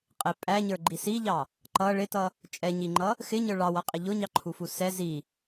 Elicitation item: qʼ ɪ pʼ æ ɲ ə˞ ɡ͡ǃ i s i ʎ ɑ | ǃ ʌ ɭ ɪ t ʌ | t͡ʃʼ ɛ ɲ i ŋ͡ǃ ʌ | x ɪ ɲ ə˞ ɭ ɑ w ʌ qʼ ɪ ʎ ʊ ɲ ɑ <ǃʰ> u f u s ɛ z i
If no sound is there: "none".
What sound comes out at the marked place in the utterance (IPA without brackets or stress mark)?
ǃʰ